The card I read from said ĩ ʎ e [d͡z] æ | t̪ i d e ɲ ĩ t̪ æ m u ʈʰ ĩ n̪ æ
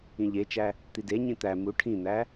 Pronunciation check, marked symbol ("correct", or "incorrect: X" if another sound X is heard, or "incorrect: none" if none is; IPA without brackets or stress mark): incorrect: t͡ʃ